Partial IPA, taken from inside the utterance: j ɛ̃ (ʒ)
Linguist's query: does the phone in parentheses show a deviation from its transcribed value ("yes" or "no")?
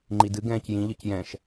yes